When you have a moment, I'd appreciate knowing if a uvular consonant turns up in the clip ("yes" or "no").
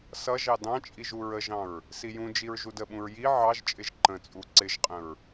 yes